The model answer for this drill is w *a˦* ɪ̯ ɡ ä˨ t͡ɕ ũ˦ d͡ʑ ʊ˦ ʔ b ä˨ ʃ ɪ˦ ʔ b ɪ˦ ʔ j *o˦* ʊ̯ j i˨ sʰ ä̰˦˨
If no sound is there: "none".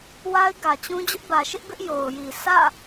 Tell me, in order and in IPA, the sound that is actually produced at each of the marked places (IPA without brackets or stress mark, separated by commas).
a˦, o˨